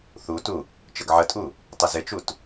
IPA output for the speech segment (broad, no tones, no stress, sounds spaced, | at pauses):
θ u t u | t͡ʃ ə ɡ ʕ ə tʼ u | tˤ ə z ɪ t͡ʃ u t